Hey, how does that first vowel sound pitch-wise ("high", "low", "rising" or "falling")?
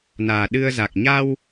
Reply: low